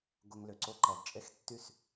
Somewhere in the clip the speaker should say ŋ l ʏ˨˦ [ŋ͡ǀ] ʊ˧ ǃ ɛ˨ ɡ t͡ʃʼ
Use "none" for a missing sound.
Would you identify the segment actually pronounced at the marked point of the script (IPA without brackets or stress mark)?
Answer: ǀ